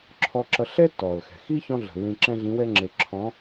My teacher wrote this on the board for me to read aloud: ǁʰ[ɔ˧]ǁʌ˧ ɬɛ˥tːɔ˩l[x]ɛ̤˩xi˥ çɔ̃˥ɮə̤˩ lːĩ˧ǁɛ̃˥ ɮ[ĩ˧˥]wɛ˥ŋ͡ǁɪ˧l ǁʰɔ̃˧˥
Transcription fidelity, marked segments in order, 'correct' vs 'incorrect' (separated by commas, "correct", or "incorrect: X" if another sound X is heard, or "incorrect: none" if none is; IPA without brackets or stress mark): correct, correct, correct